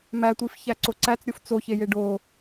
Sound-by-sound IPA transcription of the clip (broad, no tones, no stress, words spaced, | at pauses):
mætʷifçæǀo ǀæt͡sɾʲof t͡soçeje ɖo